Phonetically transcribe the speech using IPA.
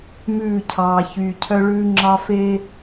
mʉː˦˨cʰɑː˨ çyː˨cʰœ˦ ɭʉː˦ŋ͡ǁɑ˦ fe˦

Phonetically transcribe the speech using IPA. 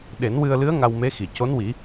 ɗe˨˩˦nwɨ˧ə̯lɨ˧˥ə̯ ŋa˧wme˧˥xi˨˩ co˧˥nwi˨˩˦

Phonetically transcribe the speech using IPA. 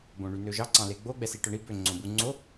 bõɳynøʒɑ ǀɑ̃leɡ͡bo ɡ͡bɛsiʈœɳi bø ŋ͡ǀõbu ŋ͡ǀo

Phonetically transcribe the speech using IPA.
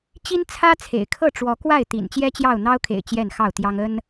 t͡ɕi˦nt͡sʰä˦t͡sʰḛ˨˩ɪ̯kʰɤ˥˨ ʈ͡ʂwɔ˨˦kwa˥˨ɪ̯t̪ḭ˨˩n t͡ɕjɛ˦t͡ɕjɑ˥˨ʊ̯n̪ɑ˦ʊ̯kʰḛ˨˩ɪ̯ t͡ɕjɛ˥˨nxɑ˥˨ʊ̯t̪jɑ˦ŋ ə˦n

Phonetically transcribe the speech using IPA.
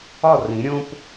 ɒ˦˨rĩ˨˦ ɾʲõ˦p

